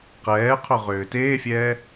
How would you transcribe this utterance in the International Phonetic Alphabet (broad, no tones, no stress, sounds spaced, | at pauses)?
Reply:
q ɛː qʰ ɵ ʁ ʏː t eː fʲ ɛː